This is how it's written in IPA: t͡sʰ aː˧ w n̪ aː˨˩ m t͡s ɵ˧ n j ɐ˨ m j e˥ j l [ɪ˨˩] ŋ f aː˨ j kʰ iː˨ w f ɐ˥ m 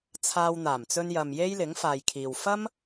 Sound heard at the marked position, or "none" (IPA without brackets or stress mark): ɪ˨˥